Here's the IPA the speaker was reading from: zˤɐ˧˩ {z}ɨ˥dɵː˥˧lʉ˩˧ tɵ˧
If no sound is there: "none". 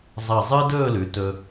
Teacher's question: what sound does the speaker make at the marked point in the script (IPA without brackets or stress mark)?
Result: zˤ